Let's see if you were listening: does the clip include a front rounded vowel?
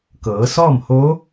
no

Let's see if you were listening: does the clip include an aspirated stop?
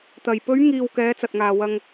no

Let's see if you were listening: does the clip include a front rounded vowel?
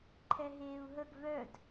yes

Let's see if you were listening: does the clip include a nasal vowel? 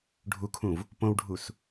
yes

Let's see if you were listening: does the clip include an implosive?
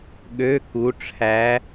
yes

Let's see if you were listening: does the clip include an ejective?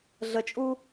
yes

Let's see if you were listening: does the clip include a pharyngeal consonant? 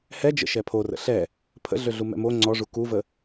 no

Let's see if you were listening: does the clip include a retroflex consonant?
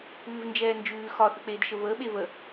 no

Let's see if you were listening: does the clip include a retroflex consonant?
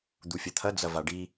yes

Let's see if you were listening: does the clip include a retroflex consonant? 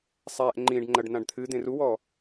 yes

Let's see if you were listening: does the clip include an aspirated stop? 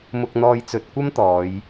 no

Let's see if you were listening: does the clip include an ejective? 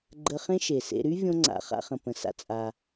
yes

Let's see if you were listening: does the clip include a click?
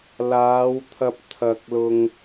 no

